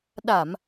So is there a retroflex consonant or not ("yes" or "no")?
no